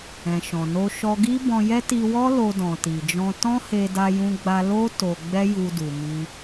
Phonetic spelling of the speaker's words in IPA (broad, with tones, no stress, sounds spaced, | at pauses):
ɛ̃˨ ʃ ɔ̃˨ n o˧ ʃ ɔ˧ ɡ i˦ b ɔ̃˧ j ɛ˦ t i˧ w ɔ˦ l o˧ d ɔ̃˨ t i˨ d͡ʒ ɔ̃˧ t ɔ̃˦ h e˧ d a˧ j ũ˧ ɡ͡b a˧ l o˦ t o˧ ɡ͡b ɛ˦ j u˧ d u˨ m i˧